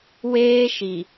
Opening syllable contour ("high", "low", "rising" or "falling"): high